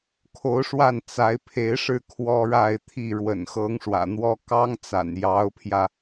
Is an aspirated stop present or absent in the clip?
present